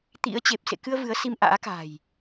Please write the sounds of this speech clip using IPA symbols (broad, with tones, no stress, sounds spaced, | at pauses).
t̪ ḭ˧˥ ə̯ t͡ɕ e˨˩ p̚ s ḛ˧˨ k ɨ˧ ə̯ v ɨ˨˦ ə̯ s i˧ m ʔ a̰ː˧˥ k a̤˨˩ j